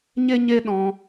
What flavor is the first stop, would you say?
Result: implosive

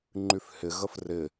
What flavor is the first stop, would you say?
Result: click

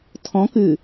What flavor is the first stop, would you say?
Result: aspirated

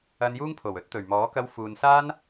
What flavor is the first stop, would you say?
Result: aspirated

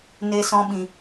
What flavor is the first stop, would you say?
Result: implosive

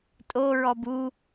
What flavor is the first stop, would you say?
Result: ejective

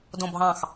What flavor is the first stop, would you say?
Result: plain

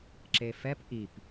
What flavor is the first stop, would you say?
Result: click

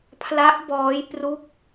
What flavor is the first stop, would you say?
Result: aspirated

